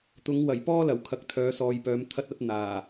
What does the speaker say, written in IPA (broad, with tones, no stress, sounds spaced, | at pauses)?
t̪ ʊ˨˥ ŋ w ɐ˨˩ j p ɔː˥ l ɐ˨˩ w kʰ ɐ˨ k̚ t̪ʰ œː˨˧ s ɔː˨ j p œː˨˧ m t̪ʰ ɐ˥ t̚ ɐ˥ t̚ n̪ aː˨˩